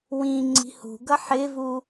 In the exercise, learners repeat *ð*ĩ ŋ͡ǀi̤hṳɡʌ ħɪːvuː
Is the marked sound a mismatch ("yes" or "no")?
yes